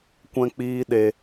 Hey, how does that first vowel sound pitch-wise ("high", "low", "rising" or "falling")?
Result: low